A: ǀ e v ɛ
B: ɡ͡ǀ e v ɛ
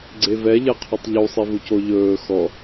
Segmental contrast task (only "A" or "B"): B